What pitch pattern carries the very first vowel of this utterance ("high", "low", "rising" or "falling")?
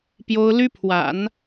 high